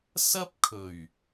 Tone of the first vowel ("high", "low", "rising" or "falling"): high